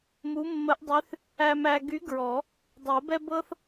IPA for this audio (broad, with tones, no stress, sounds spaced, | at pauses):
m u˧˥ mː ə˧˥ ʔ dˤ y˧˥ θ | æ˧ m æ˧ ɡ y˧˥ ɡ ɹ ɔ˨˩˦ | dˤ o˨˩˦ b ɛ˥ b ɤ˥ θ